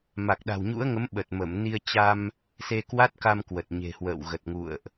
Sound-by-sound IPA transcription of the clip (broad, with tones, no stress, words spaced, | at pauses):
ma˨˩k̚ɗa̤˨˩wɲṵ˧˥ə̯ŋə˨˦m ɓə˨˩t̚mə˧˩mni˧ə̯ t͡ɕa˧m | se˧kwa˦˥t̚ka˧mkwə˨˩t̚ ɲe̤˨˩hwə̰ː˧˨w ɣə˨˩t̚ŋṵ˧˨ə̯ʔ